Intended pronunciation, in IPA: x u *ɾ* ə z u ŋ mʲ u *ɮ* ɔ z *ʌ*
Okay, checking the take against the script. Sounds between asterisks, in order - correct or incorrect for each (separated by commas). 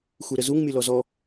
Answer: correct, incorrect, incorrect